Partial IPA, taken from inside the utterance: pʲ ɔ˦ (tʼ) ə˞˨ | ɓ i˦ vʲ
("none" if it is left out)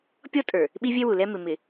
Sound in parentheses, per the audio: tʼ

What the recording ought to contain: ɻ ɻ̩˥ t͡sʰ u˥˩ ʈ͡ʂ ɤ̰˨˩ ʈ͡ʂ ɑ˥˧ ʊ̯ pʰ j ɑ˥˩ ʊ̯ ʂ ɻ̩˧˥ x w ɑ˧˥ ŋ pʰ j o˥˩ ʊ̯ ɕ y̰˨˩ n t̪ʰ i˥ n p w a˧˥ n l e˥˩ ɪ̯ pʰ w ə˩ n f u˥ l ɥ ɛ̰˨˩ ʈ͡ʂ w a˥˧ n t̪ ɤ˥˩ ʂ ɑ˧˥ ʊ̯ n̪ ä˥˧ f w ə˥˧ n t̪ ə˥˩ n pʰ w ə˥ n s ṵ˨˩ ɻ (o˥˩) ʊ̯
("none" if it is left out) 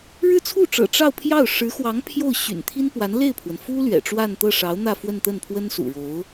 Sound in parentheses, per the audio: o˧˥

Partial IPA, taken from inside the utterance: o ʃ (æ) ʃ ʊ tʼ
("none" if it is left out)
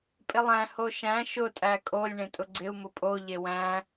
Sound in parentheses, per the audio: æ̃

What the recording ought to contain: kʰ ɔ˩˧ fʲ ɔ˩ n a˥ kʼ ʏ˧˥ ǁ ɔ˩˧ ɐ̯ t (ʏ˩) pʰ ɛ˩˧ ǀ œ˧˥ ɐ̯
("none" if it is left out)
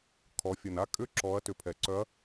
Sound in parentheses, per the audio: ʏ˩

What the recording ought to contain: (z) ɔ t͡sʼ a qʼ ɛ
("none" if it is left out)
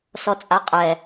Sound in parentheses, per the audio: s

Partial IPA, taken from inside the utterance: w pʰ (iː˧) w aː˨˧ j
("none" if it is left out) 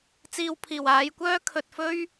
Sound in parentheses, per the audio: iː˨˩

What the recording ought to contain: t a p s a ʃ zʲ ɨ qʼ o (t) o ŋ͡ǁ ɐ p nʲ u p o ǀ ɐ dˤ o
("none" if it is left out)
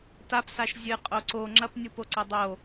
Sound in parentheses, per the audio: ǀ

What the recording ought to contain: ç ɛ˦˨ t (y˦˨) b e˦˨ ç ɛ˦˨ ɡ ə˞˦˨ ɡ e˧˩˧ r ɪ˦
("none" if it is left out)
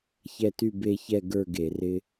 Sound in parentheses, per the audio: y˦˨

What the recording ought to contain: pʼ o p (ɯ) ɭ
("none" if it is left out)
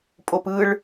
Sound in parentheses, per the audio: ɯ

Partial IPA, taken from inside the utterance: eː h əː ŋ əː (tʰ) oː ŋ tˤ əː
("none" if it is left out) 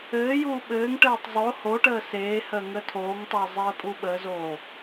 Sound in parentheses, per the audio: tʰ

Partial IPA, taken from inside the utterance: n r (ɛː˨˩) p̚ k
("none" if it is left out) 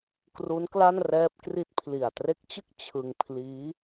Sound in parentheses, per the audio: ɛː˦˥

